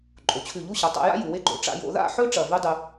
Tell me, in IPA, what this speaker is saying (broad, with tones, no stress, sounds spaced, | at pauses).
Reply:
ǃʼ o˩˧ t͡ɕʰ ʉ˧˩ ʎ u˥˧ ɕ ɐ˩˧ tˤ a̰˧ j a̰˥ j u˩˧ w e˥ ɡ͡ǃ o̰˧˩ ʈ͡ʂ a̰˥˧ j o̰˧ ð a̰˥˧ ħ ɵ˥ ʈ͡ʂ ɐ˧˩ v ʉ˥ dˤ ʉ˧